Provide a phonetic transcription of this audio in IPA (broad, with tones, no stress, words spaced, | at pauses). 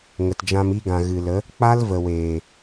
ŋə˨td͡ʒã˧m i˧ɡã˨ ɣɨ˨lə˨˦ | k͡pa˦lvə˨weː˨